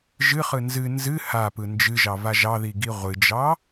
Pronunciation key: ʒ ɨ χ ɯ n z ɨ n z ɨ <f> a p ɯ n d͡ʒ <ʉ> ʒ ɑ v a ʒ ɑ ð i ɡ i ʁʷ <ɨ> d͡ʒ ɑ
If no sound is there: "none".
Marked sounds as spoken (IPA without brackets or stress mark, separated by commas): h, ɨ, ɨ